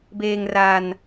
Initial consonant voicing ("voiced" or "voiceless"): voiced